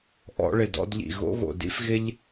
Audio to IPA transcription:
ʔ ɔ̰˧ ɭ ɪ˨ d ɔ̰˧ d ʎ ḭ˨ ɣ o̰˧ ɣ o̰˨ d ḭ˧ f ɣ ɪ˧ ʎ

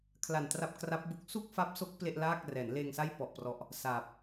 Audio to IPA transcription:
kʰ l a˨˩ n t r a˦˥ p̚ k r a˦˥ p̚ b u˦˥ k̚ s uː˥˩ k̚ f a˦˥ p̚ s o˦˥ k̚ p l e˥˩ ʔ l aː˥˩ k̚ r ɛː˩˦ n l eː˧ ŋ s a˥˩ j p ɔ˨˩ ʔ p r ɔ˨˩ ʔ | s aː˨˩ p̚

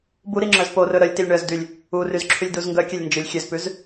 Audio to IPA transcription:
b u ɾ i ŋ͡ǁ œ z p o r ɵ ɾ œ lʲ t i lʲ ɳ œ z d y lʲ | u r y z ǁʰ y lʲ d u z ŋ ɡ œ kʲ ɛ lʲ n d͡ʒ ɵ lʲ xʲ ø z p ʉ z

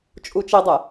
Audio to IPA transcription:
t͡ʃʼ u t͡ʃ i dˤ ɛ

